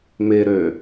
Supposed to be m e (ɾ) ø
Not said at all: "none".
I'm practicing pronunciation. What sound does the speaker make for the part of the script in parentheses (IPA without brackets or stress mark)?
ɾ